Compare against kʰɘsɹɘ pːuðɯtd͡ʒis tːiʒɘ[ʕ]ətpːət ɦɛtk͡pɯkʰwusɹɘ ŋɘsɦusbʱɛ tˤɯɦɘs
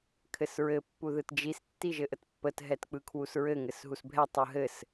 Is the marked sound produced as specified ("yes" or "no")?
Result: no